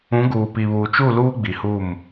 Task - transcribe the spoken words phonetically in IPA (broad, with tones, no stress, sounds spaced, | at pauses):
ũ˨˦ ɡ uː˨ p i˨ β uː˨ t͡ʃ u˦˨ l uː˦ ɡ͡b i˨ h uː˦˨ m